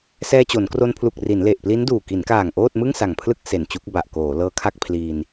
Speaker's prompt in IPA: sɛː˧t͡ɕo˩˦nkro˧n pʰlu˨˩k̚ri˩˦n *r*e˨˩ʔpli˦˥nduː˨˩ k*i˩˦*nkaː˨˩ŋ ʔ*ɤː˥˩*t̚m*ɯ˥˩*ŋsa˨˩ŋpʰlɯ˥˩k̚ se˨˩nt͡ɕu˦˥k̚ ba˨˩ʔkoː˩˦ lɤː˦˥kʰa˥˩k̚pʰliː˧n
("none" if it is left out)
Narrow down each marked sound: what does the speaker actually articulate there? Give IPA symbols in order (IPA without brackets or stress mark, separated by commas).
l, i˩˦, oː˥˩, ɯ˥˩